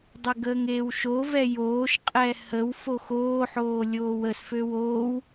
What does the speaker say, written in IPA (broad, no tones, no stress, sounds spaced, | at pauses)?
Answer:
dˤ e ɡ əː ŋ eː w ʃ o v ɛ j oː ʃ qʼ ɛ h ə w f o x oː ħ oː lʲ oː w ə s f ø w oː w